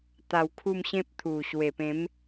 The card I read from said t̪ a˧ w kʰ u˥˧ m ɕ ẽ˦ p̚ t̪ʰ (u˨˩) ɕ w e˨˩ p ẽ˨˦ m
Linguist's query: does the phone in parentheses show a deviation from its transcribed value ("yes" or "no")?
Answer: no